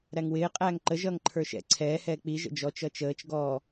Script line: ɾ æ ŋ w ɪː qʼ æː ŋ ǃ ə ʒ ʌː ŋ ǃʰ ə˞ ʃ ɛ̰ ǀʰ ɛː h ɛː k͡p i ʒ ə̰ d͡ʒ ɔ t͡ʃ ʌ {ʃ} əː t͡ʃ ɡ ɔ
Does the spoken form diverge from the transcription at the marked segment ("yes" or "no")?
yes